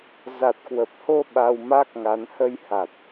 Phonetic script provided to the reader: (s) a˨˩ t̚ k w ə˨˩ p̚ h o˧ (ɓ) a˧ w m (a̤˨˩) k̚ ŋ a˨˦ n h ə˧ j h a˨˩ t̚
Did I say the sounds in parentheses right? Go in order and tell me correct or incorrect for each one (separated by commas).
incorrect, correct, incorrect